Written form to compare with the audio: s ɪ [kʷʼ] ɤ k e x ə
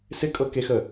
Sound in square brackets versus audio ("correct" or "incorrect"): incorrect